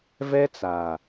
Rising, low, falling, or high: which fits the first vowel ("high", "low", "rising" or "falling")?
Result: high